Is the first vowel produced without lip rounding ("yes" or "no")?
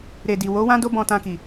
yes